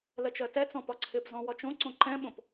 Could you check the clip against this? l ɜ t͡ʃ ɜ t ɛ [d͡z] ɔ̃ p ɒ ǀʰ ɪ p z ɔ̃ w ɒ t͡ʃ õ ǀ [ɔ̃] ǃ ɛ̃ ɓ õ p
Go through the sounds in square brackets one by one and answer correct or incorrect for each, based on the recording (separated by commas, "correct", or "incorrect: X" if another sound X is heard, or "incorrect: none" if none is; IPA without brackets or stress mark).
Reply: incorrect: t͡s, incorrect: õ